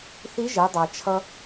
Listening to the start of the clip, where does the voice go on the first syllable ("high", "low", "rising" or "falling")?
rising